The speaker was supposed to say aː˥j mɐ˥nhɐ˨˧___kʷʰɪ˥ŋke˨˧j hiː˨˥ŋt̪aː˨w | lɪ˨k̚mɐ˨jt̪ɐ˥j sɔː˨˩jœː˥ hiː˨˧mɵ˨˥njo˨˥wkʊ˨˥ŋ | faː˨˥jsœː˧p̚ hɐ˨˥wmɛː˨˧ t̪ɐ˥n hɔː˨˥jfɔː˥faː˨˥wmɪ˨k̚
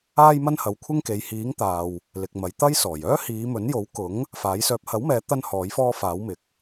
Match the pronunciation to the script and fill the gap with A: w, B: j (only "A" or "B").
A